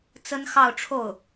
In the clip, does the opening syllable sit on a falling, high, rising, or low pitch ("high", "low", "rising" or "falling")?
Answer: high